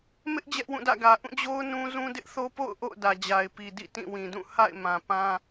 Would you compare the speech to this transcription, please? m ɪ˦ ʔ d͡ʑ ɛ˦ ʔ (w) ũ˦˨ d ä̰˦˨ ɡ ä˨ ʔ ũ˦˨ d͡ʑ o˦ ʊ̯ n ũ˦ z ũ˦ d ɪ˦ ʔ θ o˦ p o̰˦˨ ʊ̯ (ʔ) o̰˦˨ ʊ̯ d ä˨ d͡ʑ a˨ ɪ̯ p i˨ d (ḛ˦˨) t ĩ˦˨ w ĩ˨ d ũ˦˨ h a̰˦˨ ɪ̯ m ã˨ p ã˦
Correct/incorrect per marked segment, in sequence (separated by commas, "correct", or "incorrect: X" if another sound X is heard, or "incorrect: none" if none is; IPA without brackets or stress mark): correct, correct, incorrect: ḭ˦˨